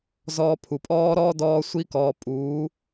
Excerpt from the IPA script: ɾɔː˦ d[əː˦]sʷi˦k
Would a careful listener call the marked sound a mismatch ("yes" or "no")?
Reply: yes